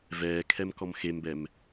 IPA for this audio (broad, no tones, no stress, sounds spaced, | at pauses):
v ɛː kʰ ɛ m k ɔ m x e m b ɛ m